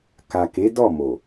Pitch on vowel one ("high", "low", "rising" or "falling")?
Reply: low